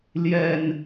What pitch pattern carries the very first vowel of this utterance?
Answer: low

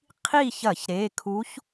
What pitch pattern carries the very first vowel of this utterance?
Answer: falling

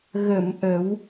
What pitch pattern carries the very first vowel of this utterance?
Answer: low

